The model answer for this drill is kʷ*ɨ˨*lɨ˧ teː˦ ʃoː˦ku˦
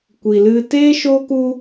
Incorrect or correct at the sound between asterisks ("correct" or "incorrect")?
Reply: incorrect